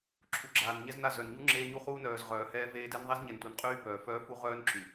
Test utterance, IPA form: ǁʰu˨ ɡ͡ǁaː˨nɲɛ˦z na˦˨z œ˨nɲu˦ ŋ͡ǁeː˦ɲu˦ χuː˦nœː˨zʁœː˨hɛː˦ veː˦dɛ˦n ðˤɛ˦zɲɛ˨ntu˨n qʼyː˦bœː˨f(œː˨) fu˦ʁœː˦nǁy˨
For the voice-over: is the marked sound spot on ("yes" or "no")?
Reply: no